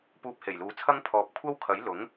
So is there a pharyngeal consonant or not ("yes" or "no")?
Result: no